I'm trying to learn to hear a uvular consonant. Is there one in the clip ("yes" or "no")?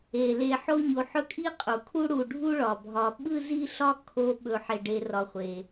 yes